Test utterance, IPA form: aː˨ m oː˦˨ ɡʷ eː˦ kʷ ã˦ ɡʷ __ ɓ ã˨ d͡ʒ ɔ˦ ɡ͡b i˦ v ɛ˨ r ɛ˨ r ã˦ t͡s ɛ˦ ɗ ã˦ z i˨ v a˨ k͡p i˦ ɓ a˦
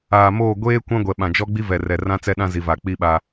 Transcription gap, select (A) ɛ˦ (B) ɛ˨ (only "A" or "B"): B